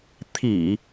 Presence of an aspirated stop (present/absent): present